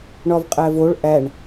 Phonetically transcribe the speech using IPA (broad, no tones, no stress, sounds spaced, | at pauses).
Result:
ɳ ɒ v qʼ æ v o ɭ ʔ æ ɳ